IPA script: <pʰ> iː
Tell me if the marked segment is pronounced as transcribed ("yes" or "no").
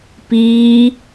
no